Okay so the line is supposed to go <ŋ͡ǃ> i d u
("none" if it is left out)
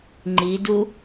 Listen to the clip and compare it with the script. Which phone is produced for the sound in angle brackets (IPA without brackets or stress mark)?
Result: ŋ͡ǃ